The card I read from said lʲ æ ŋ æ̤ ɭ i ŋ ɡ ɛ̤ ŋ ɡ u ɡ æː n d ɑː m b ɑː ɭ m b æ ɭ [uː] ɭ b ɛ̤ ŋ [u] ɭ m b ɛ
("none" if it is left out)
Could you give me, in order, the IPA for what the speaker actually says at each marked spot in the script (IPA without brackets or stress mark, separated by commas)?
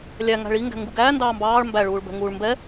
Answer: uː, uː